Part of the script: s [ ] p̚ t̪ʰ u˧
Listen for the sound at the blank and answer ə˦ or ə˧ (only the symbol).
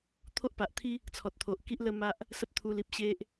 ə˦